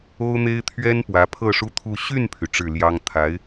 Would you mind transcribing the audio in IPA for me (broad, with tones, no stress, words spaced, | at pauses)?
o˥ʊ̯n̪e˥ɪ̯ t̪ʰɥɛ˥n pwä˧˥pʰɤ˥˩ʂu˥t̪ʰu˥˧ ɕy˥˩npʰy˩ ʈ͡ʂɻ̩˥˩ljɑ˥ŋ t̪ʰa˧˥ɪ̯